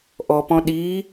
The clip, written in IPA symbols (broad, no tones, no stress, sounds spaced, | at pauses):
ʔ ɔ p ɔ̃ ɗ i